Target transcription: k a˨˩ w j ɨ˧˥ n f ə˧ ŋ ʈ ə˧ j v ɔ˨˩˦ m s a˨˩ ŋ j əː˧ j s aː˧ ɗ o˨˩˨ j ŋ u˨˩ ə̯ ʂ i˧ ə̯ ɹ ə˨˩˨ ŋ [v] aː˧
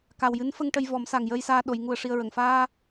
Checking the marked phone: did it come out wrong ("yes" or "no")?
yes